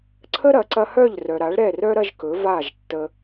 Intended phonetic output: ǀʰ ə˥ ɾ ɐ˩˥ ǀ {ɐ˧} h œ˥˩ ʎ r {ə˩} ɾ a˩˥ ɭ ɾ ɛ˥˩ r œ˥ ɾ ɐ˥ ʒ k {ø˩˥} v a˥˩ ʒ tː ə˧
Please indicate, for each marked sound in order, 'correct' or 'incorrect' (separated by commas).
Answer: correct, incorrect, incorrect